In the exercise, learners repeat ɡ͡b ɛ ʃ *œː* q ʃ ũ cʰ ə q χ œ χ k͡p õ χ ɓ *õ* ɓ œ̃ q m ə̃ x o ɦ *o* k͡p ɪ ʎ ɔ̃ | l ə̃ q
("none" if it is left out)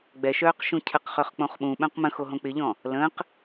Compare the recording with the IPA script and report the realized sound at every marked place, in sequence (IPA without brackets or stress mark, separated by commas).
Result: œː, ũ, õ